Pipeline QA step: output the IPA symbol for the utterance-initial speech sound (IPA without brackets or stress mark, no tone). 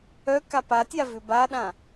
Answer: œ